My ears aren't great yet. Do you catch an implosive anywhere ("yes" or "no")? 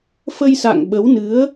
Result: yes